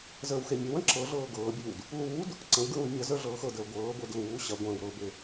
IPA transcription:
z əː w x e mʲ ɐ w ɐ̃ ǁ ɤ ɮ ɤː ɡ ɤː bʲ uː d | l uː d | ǀ ə̃ w ɡ ɹ ũ d mʲ ɐ z ə˞ ɮ ɤː x ɤ d əː ɡʷ ɤː ɡʷ e d l uː ɕ ɐ ɡʷ ɐ̃ː w ɾ ɤ b e

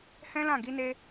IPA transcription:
h ɛ̃˦ l ã˦˨ ɡ i˧ n e˧

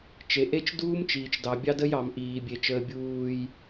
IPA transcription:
t͡ʃ e˨ ʔ e˦ t͡ʃ d uː˦ m t͡ʃ iː˨ t͡ʃ d ɑ˨ bʲ ɑ˦ d ə˦ j ɑ˨ m ʔ iː˨ bʲ e˨ t͡ʃ əː˨ bʲ uː˨ j

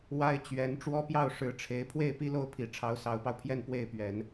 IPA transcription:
w a˥ ɪ̯ t͡ɕ ɥ ɛ˧˥ n ʈ͡ʂ w ɔ˥ p j ɑ˥˩ ʊ̯ ʂ ɻ̩˧˥ ʈ͡ʂʰ e˧˥ ɪ̯ pʰ w e˥˩ ɪ̯ p i˥ l o˥˩ ʊ̯ pʰ i˨˩ ʈ͡ʂʰ ɑ˧˥ ʊ̯ s ɑ˧˥ ʊ̯ p ɑ˧ ʊ̯ pʰ j ɛ˥˧ n p w e˥˩ ɪ̯ p ɥ ɛ˨˩˦ n

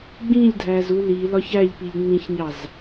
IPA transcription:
ɡ͡b ĩ ʎ dʱ æ z u l i l ɒ ç æ ʎ p i ʎ ŋ͡m ĩ ç ɲ ɑ z

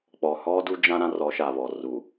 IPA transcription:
k͡p ɔ˨ h ɔ˦ d u˦ d͡ʒ ã˦ ɾ ã˦ r ɔ˨˦ ʃ a˨ β ɔ˨ r u˨

